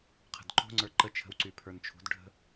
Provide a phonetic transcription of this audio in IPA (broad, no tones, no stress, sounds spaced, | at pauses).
qʰ ə̤ d ǃ o̤ ŋ͡ǀ ə˞ ǃ ə t͡ʃʰ ə̤ w ǀ y pʰ ə˞ n t͡ʃʰ ṳ d ɖʱ ə̤